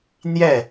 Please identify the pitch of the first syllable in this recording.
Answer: falling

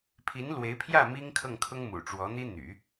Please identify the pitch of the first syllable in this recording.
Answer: rising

